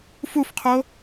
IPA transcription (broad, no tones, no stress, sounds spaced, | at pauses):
f u f qʰ o